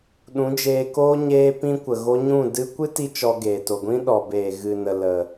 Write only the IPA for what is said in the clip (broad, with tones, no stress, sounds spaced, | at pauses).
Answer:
ɗ ũ˨˦ d͡ʒ eː˧ k oː˦ ɲ eː˦ p ĩ˦ kʷ ə˨ ɣ o˦ ɲ ũ˦˨ d ɨ˧ kʷ ɨ˦ t i˧ t͡ʃ ɔ˧ ɡ eː˨ t o˨ ɡʷ ĩ˦ ɗ ɔ˨ b eː˨ ɣ ɨ˨ n ə˨ l ə˨